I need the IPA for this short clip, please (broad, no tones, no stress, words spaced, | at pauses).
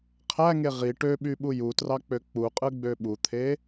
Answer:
qʰæŋe ʁi ʈøɓyɓu jutrɑk͡pø k͡puqʼɯɡ͡bø ɓut̪ʰe